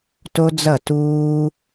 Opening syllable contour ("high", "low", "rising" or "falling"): high